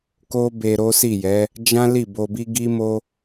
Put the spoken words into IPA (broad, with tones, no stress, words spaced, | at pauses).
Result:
ko˦be˧ ɾo˦si˦˨jɛ˨˦ | d͡ʒã˦ li˦˨bo˧bi˦ ɡi˦ mo˦